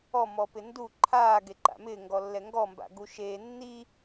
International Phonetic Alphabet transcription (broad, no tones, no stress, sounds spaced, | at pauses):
ɔ m ɔ p ɪ n d u ǃʰ aː ɡ e ǃ a̰ m ɪː ŋ ɡ ɔ lː ɛ ŋ ɡ ɔ m b a̰ ɡ u ʃ eː nː i